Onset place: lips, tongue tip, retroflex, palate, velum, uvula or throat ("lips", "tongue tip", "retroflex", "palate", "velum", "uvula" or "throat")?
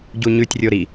palate